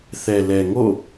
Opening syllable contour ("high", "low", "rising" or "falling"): low